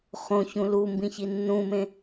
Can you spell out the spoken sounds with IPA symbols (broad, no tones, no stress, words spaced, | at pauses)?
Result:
χõçũ lu mbĩçinːũmẽ